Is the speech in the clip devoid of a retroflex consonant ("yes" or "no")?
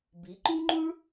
no